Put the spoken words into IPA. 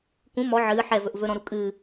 k ũ m ɔ ʕ ɨː ħ ɛ v ɵ ʔ v ɵ ɾ ɔ̃ ɾ u kʼ ɨː

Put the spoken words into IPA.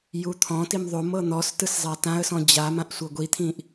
j u t̪ʰ ɔ̃ t i m ðˤ o m ɤ n̪ ɔ s t ɯ s zˤ a t ã ə̯ s ɔ̃ d͡ʑ a m ã ʔ sʷ ɤ ɡʷ i t̪ʰ ĩ ʔ

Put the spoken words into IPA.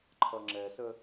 ǃʰ ʌ ŋ͡ǁ ɛ s ə

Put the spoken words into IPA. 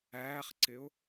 æː χ ǀ ɪ ʊ̯

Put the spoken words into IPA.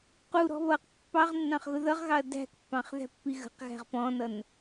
q u ɾ ɔ̤ β ʌ q pː ɑ ʁ nː ɑ̃ χ ɣ ʊ ð ʌ ʁ ɣ ɑ ɐ̯ d æ̤ k pː ɑ̃ χ ð æ̤ pː i ɣ ə̤ q ɣ æ̤ ʁ p ɔ̃ n ʌ n

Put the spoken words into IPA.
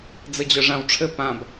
d͡z ɘ d͡ʑ œ ʐ ã w ʈ͡ʂʰ ɘ p ã b

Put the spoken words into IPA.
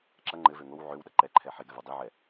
ǁ ɐ ŋ͡ǃ ɘ v ø ŋ o w ʕ ø w ɗ ɐ ǃ ɛ ǃʰ ɛ ħ e ɡ ɘ v ɐ dˤ i ʕ ɛ

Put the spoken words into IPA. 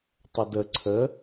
tˤ ə d ə ǀʰ ə

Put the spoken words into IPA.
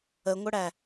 ə ŋʷ ə ɽ æ

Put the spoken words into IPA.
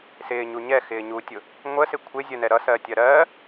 s ɪː ɲ u ɲ ɛ x ɪː ɲ u tʲ ʊ | ŋʷ ə s ɪ kʷʰ ɪ zʲ ə n ɛ ɾ ʌ s ɜː tʲ ɜ ɾ ɜː

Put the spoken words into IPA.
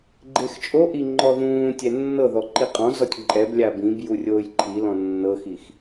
ɡ͡ǃ e x t͡ʃʼ o ʔ i ŋ͡ǃ ɔ ð ũː tʲ ɛ nː ɤ ð ɔ ǃ i qʼ ɔ̃ z ɔ tʲ ǃʼ ɛ b lʲ a b ĩ b j u rʲ oː j ǃʰ i l ɔ̃ nː ɤ x i x

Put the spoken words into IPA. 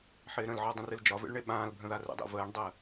ħ ɪː ɾ ə̃ l ʕ ɒ dˤ ə̃ r ɨ l d͡ʒ ɒ v ḛ ɭ ɳ e ɓ ãː l bʱ ə̃ ð a r ə̰ dˤ ɛ̰ v əː ɳ dˤ ɜ

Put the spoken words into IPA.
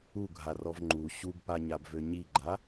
u ɡʱ a r ɔ v ŋ͡ǃ u ɕ u b p a ɲ a b v ø ɲ i ɡ͡ǃ a

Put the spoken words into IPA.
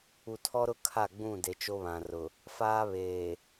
u˨ tʰ ɔ˦ ɾ ʊ˦ kʰ a˦˨ ɡ͡b ũ˦˨ d e˨ t͡ʃ o˦ β ã˨ r ʊ˨ | f aː˦ β eː˨

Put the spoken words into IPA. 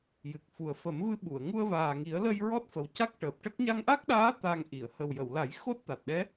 j ɨ˨˩ k̚ f u˨˩ ə̯ f ə˨˩˦ m v ɨ˧˥ ɓ u˨˩˨ ə̯ ŋ u˧ ə̯ v aː˨˩ ŋ i˨˩˦ ə̯ l ə˧ j ɹ ɔ˦˥ t̚ f ə˨˩ w c a˦˥ k̚ ʈ əː˨˩ p̚ ʈ ə˦˥ k̚ ɲ a˧ ŋ ʔ a˦˥ k̚ ɗ aː˧˥ t̪ a˧ ŋ ʔ i˨˩˨ ə̯ h ə˨˩ w j ə˨˩˨ w l a˨˩˦ j x o˦˥ t̚ t̪ a˨˩ t̚ ɗ ɛ˧˥

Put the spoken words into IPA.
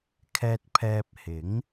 kʰ ɛː˧ t̚ pʰ ɛː˧ p̚ h ɪ˨˥ ŋ

